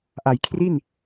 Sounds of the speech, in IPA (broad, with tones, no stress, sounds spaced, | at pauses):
ʔ a˩˦ j kʰ r i˥˩ n